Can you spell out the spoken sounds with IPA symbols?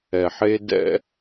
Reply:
ɛ˨ħe˦ dɛ̰˦

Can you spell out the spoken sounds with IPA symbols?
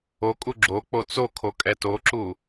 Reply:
okʼu ɡ͡ǁo k͡pot͡sokʰo kʼɛtoǁu

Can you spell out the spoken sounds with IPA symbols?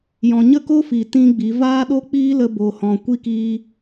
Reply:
jɔ̃˨ɲə˦˨ko˦fi˨ tĩ˦ɡ͡bi˨˦ vaː˦ɗo˦ k͡piː˦lə˧ bo˧hɔ̃˧ kʷi˦kiː˦

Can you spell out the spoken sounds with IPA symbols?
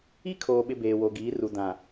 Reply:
i˦kʰoː˨ɓɪ˨ beː˨wo˨ɡiː˨˦ru˨ dã˨

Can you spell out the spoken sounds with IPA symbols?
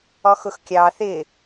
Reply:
ɔxʊxkʲɑ θɪ

